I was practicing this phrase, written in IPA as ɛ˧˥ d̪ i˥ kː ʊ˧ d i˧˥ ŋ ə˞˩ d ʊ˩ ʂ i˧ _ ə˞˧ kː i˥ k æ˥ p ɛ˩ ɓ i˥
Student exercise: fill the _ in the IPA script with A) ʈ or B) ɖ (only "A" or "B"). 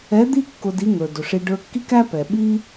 B